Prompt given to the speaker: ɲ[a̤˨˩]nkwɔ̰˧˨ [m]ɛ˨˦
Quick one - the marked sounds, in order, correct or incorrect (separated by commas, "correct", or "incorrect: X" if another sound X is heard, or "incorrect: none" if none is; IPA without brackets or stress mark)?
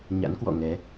incorrect: a̰˧˥, incorrect: ŋ